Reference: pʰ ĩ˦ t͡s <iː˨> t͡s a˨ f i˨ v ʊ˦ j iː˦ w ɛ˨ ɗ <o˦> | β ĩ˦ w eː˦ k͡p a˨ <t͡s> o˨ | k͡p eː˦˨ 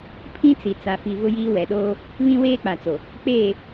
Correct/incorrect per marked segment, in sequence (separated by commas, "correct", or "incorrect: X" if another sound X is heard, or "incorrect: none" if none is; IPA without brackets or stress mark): incorrect: i˨, incorrect: oː˦, correct